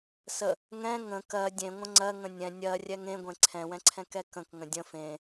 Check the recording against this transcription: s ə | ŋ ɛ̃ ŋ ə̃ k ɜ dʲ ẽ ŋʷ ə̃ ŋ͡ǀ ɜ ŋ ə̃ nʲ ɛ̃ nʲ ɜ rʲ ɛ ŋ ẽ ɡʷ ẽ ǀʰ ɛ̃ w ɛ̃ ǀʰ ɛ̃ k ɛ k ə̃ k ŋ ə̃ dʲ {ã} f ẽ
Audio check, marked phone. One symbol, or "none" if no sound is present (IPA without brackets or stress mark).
ə̃